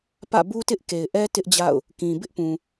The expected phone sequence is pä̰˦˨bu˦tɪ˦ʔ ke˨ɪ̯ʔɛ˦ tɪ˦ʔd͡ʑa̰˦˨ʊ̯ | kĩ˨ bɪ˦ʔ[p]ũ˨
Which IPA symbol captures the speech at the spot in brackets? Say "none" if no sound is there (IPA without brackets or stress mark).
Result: p